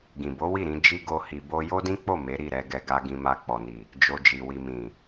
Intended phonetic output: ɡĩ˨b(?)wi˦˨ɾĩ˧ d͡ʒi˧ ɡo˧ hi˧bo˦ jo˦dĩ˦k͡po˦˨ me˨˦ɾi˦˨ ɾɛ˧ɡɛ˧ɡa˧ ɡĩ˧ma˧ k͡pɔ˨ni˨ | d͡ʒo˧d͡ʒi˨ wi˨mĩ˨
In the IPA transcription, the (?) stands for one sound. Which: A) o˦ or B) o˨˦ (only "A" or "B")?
B